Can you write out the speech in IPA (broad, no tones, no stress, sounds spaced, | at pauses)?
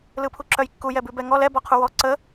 l ɯ pʰ u ǁ œ j kː u j ɛ b ʉ b ɛ ŋ ɔ l ɛ b ɔ qʰ u w ɔ ǀ ə